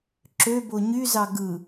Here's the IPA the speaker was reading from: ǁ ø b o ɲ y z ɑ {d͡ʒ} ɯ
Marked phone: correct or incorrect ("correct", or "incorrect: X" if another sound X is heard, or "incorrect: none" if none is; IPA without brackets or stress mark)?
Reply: incorrect: ɡ